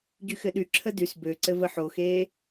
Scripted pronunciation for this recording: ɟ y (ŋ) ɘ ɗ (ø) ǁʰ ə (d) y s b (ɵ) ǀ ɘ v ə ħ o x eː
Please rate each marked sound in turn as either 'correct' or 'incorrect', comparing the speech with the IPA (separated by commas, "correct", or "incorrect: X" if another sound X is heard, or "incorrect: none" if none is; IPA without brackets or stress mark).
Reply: incorrect: x, incorrect: y, correct, incorrect: ø